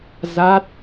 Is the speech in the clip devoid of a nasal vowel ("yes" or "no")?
yes